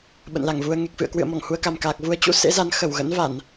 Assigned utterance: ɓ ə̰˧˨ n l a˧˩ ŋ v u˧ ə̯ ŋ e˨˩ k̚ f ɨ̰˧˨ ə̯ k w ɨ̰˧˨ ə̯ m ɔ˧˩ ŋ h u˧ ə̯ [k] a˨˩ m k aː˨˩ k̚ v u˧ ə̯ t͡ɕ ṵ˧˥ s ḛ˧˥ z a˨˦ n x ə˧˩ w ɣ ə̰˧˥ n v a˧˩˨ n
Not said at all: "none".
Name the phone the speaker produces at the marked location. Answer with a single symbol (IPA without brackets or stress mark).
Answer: k